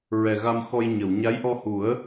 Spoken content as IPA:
ɹ ɛ˨˩ ɣ a˧ m x ɔ˧ j ɲ ə˨˩˨ w ɲ a˧˥ j ʔ ɔ˧ h u˨˩˦ ə̯

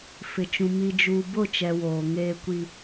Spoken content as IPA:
f ɪ˨ t͡ʃ ũ˨ m i˨ d͡ʒ uː˨ b ʊ˦˨ t͡ʃ ɛ˨ w oː˨ ŋ eː˦ kʷ i˦

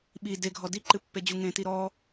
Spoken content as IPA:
ɓ i d e ɡʱ ɔ d i ǃ ɨ pː e d͡ʑ u ŋ ẽ t i ɾ ɔ

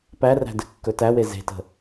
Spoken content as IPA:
p æ r æ̤ d ɘ kː ɵ t æ w e z e̤ t ə̤

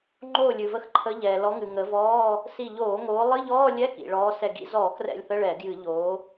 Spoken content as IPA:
ŋ͡ǃ oː˧˩ lʲ ɨ˩ v ə˨˦ x ǃʰ ə˨˦ ʎ ɛː˩ l ɔ˨˦ ŋ ɨ˩ ŋ ə˨˦ v ɔː˧˥˧ | s i˧˩ ʎ oː˧˩˧ ŋ oː˨˦ lˠ ɨ˧˥˧ ʎ ɔː˧˥˧ lʲ ɛ˧˥˧ k ḭ˩ ɭ ɔː˨˦ s ɛ˧˩ ɡ ḭ˧˥˧ z ɔː˧˩˧ k r ɛ̰˧˩ lʲ θ ə˧˥˧ ɭ ɛ˧˩˧ ɡ j ɨ˧˩˧ ʎ oː˨˦

